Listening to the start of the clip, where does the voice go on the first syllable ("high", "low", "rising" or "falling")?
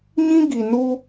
high